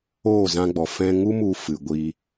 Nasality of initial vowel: oral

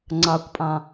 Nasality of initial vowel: oral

